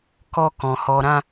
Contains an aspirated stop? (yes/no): no